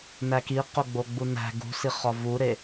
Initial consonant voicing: voiced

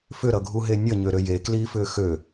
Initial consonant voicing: voiceless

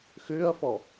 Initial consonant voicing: voiceless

